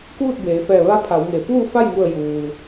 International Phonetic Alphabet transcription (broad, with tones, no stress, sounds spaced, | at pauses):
k uː˥˨ t̚ b eː˩˧ f ɛː˧˩ ʋ a˧ pʰ a˩˧ w ŋ e˩ f uː˥˨ f a˥˨ j ŋ u˧˩ ə̯ j uː˩